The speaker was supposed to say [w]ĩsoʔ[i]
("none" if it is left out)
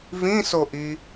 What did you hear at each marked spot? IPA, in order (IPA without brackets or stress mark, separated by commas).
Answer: v, i